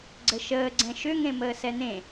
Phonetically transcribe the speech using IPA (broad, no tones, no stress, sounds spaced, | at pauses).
ɡ͡ǀ ə ʃ əː ɡ͡ǀ ɛ̃ ʃ ʏ ŋ ẽ m əː s ɛ n̪ ẽ